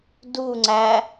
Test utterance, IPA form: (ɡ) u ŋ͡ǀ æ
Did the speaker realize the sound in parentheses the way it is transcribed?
no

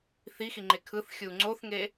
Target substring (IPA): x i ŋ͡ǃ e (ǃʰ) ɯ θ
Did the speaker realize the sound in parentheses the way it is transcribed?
no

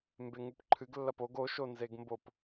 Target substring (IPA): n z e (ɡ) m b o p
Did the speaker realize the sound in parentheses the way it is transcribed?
yes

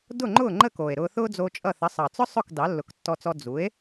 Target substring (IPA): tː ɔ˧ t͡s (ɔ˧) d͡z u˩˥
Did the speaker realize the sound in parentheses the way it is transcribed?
yes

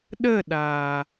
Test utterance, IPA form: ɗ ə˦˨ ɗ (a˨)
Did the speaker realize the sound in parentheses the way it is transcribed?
yes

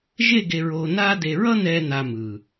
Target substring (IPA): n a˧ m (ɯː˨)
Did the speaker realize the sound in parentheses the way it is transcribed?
yes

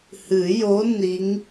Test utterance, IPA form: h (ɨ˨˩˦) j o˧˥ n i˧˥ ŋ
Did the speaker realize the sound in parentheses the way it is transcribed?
yes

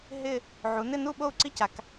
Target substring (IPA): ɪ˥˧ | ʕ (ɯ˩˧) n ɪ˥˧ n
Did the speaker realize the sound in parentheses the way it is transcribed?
no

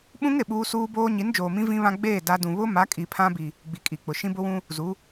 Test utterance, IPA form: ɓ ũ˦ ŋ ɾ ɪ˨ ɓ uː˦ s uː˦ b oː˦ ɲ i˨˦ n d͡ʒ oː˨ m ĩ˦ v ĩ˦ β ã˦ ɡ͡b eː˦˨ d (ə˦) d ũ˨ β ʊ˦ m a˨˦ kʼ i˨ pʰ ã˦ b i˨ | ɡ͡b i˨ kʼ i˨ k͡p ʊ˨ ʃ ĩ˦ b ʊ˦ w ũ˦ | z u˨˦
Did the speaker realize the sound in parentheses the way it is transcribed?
no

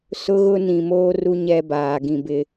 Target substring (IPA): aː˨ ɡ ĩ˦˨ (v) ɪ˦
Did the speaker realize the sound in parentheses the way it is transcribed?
no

